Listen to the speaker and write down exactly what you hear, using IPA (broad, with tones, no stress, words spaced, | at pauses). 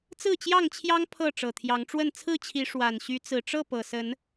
t͡sɹ̩˥˨t͡ɕjɑ˥˨ŋt͡ɕʰjɑ˦ŋ pʰɤ˥˨ ʈ͡ʂɤ˨˩t̪ʰjɑ˨˦ŋʈ͡ʂwə˥˨n t͡sʰɹ̩˥˨t͡ɕʰi˨˦ ʂwa˨˩nɕy˨˦t͡sɹ̩˨˩ʈ͡ʂɤ˥˨ pɤ˨˩sə˨˦n